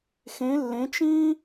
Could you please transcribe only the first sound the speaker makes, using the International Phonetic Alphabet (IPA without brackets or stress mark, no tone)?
x